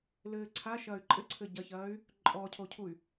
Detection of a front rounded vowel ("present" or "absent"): present